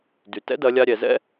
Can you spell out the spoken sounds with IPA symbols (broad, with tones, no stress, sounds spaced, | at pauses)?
d y˩ t ɛ̰˥ d ɐ˩˧ lʲ a˧ ɾʲ ɛ˩ z ɛ̰˥